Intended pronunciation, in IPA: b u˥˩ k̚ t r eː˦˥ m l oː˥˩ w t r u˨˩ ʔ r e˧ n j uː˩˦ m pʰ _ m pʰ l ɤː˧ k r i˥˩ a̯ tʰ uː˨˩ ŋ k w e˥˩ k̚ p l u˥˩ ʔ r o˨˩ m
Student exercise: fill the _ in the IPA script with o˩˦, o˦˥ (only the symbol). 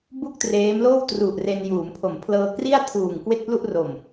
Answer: o˩˦